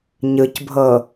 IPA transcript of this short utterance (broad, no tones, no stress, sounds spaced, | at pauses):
ɲ ɯ c bʱ ɤ